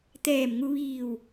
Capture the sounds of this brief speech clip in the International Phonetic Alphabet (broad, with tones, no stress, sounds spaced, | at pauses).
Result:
t̪ ɛː˧˩ m ŋ u˧ ʋ iː˧˩ w